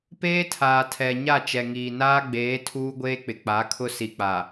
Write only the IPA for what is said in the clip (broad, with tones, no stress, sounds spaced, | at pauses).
p eː˦ tʰ aː˨ tʰ ɛ˨ ɲ a˦˨ t͡ʃ ɛ˨ ŋ iː˨ n aː˦ ɡ͡b eː˨˦ tʰ uː˦ ɡʷ eː˦ k͡p ɪ˨ k͡p a˨˦ kʰ ʊ˦ s i˨ k͡p a˨